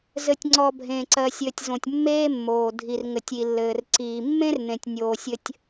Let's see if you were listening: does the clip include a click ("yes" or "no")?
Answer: yes